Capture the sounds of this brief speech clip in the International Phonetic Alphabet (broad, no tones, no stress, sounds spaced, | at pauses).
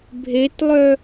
bʱ e t lˠ œ